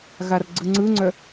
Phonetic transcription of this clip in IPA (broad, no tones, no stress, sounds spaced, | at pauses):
ɣ a r ɡ͡ǀ ɯ ŋ͡ǀ ɯ ŋ͡ǀ œ